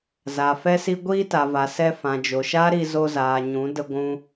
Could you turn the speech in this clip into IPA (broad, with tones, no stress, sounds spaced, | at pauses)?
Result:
z a˨ f ɛ˦ s i˦ ɡʷ iː˦ t a˨ v a˨ s ɛ˧ f ã˨ d͡ʒ o˨ ʃ aː˦ ɾ i˧ z o˧ z aː˨ ɲ ũ˨˦ d ə˧ ɡʷ ũ˧